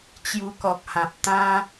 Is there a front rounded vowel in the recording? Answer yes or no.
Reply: no